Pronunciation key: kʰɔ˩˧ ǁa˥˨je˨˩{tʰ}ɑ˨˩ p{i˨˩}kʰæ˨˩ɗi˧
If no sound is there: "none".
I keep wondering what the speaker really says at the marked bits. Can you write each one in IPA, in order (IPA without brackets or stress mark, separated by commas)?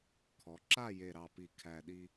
ɾ, i˨˩